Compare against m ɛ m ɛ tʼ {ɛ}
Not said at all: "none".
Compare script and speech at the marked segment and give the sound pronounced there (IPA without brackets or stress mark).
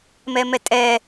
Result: ɛ